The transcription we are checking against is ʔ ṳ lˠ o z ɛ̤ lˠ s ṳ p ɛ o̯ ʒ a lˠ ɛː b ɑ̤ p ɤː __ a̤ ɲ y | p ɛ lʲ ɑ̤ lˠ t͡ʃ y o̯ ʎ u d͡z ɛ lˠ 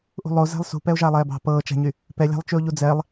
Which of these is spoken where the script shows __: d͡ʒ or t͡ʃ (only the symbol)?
t͡ʃ